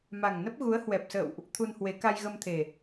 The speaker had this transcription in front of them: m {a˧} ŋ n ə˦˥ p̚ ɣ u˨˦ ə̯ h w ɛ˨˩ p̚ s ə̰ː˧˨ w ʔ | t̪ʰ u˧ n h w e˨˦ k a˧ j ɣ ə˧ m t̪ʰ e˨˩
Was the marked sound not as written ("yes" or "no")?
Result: yes